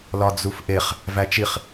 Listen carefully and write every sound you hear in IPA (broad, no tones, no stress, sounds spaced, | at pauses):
l ɒ d͡z u f ʔ e χ | v æ t͡ʃ i χ